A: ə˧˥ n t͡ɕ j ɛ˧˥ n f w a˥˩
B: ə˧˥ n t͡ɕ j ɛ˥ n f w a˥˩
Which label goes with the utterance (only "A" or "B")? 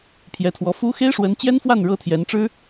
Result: B